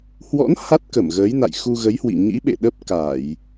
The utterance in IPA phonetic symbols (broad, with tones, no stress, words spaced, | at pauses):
hwɔ̰˧˥n ha˦˥t̚kə˧˩mɣəː˨˦j na̰˧˨jxu˧ɣə˨˦jhwḭ˧˨ ɲḭ˧˥ɓḛ˧˨ ɗə˦˥p̚ka˧˩˨j